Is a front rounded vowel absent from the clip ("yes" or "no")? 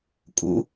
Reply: yes